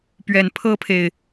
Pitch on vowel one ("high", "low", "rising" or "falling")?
low